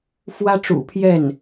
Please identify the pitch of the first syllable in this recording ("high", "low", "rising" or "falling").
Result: high